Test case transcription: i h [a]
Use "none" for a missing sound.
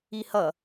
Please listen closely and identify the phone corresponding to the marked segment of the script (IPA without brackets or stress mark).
ʌ